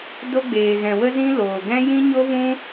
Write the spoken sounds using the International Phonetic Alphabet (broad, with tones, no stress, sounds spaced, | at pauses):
d o˧ ɡ͡b eː˨ ɣ ɛ̃˨ w ə˧ z ĩ˧ l oː˨ ɡ ɛ̃˦ j ĩ˦ ɲ o˦ v ũ˦